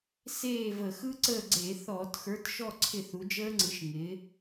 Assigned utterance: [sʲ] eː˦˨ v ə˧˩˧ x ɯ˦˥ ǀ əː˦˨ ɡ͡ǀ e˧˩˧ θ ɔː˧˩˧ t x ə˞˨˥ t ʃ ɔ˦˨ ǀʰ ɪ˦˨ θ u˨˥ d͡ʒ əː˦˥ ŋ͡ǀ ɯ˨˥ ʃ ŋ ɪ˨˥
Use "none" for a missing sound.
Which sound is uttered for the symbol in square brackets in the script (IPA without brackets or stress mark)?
s